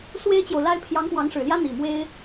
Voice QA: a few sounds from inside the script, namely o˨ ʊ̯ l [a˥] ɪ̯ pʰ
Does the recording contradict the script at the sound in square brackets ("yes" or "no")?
no